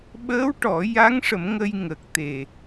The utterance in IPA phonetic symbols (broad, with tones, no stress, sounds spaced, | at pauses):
ɓ əː˧˥ w ʈ ɔ˨˩˦ j a˧˥ ŋ ʂ ə˨˩˦ m ŋ ə˧ j ŋ ə˨˩ k̚ t̪ e˨˩